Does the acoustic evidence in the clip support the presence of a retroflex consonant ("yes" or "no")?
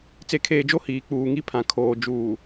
no